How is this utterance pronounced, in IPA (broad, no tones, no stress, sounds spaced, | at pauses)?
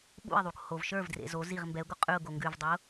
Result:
ɓ ṵ ɪ̯ ðˤ u k h o v ʃ ə˞ v d r ḛ z o z i ʁ m b ɛ ʊ̯ ɡ o qʼ ʉ ʊ̯ ɡ o ŋ ɡ ʉ v dˤ i ʊ̯